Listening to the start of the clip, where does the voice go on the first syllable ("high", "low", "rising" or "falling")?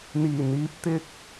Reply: low